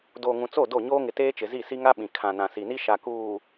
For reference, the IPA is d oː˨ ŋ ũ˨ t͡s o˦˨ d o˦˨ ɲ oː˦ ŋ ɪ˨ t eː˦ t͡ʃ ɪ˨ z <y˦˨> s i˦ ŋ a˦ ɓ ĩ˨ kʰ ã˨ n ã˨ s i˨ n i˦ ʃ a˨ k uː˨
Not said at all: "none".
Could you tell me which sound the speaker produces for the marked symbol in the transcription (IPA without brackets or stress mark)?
i˦˨